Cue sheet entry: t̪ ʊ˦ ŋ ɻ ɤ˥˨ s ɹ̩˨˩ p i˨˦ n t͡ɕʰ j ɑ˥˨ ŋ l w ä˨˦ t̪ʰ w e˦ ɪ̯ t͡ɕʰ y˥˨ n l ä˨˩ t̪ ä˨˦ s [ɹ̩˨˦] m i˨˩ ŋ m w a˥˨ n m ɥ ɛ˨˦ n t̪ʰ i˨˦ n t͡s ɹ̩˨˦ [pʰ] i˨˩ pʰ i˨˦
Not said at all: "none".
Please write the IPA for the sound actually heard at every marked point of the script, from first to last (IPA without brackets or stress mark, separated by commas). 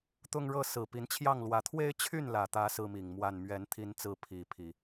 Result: ɹ̩˦, pʰ